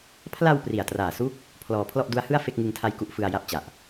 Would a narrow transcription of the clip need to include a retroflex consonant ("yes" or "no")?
no